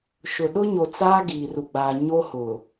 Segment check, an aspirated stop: absent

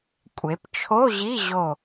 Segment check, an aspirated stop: present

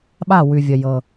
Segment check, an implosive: present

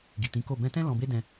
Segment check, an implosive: absent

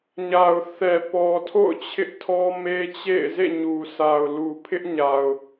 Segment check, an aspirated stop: present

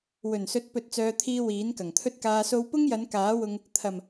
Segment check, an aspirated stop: present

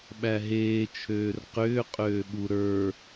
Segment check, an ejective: present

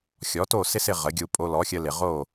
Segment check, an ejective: present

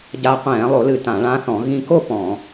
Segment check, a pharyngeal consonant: absent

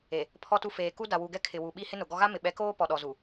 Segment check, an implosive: present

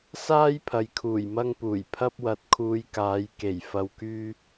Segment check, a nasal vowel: absent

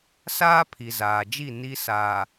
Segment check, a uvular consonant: absent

